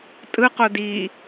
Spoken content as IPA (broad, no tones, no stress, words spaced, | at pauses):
tʼɯqo di